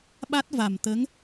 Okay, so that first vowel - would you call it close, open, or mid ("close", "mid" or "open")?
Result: open